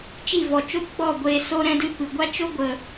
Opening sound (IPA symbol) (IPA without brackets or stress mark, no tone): t͡ʃ